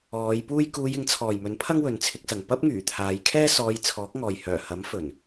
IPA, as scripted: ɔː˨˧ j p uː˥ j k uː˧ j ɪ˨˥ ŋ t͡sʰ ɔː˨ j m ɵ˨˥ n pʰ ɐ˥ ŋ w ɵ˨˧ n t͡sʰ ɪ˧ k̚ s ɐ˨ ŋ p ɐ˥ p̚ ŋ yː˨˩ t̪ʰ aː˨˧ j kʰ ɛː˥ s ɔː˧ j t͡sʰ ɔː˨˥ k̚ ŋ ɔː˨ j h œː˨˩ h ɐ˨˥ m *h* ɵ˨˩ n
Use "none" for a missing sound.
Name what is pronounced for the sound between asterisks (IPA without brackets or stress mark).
f